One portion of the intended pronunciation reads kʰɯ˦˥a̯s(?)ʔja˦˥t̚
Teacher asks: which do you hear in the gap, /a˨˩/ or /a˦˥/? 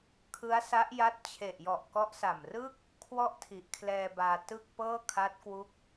a˦˥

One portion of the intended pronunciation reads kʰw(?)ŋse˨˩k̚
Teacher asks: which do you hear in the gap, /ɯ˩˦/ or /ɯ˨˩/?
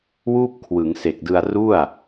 ɯ˩˦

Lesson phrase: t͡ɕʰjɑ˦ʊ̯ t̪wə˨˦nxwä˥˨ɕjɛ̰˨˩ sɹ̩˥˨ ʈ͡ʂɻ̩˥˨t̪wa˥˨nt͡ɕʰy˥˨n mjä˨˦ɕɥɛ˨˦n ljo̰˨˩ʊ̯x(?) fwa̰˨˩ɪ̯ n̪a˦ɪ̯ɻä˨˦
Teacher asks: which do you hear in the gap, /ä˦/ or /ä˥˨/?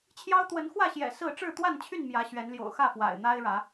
ä˥˨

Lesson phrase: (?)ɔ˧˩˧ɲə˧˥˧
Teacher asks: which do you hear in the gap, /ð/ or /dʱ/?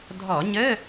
dʱ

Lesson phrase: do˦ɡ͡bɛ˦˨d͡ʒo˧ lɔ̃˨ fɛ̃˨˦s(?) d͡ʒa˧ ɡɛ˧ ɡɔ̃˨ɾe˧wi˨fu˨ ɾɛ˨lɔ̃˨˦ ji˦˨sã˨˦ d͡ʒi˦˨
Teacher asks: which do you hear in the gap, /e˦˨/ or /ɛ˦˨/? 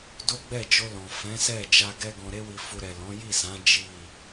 ɛ˦˨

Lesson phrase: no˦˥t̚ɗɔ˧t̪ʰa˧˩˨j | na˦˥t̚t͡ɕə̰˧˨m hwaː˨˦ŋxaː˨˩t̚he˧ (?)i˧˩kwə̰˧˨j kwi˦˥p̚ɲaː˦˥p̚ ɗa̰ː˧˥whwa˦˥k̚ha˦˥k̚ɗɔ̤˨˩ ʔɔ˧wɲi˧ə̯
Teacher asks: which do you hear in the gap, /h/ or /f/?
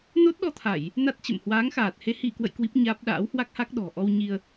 h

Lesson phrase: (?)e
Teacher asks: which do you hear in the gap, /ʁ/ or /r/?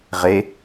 ʁ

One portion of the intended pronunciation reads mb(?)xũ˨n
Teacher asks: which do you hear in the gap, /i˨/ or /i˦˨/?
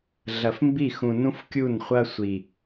i˦˨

